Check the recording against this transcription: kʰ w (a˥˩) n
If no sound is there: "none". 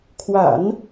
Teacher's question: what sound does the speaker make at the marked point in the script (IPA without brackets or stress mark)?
a̰˨˩˦